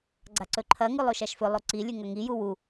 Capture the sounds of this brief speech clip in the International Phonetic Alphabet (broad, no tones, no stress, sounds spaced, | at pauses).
ɡ͡ǀ a ǀ ɵ ǃʰ ɐ ŋ ʉ lˠ o ʃ a ʃ f ɵ lˠ o ǀ i lʲ ʉ ŋ ɐ ŋ i j u w u